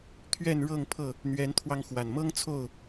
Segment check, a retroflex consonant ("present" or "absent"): present